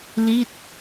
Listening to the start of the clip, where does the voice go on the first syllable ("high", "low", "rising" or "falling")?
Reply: falling